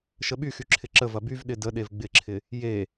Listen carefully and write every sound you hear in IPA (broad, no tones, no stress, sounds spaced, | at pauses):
ʃ ə ɓ y x y ǁʰ ɪ ǁ ə v ɐ b y v ɗ ɪ d ə ɗ e v ɡ͡b ɪ ǁʰ ɪ | j e